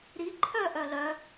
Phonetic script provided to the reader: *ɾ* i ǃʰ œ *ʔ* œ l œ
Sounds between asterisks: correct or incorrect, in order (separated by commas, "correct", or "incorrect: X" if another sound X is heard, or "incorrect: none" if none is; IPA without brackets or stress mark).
correct, correct